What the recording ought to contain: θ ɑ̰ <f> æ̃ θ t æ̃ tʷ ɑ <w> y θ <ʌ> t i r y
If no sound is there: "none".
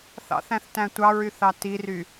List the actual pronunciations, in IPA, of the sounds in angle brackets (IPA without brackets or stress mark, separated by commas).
θ, ɹ, ɑ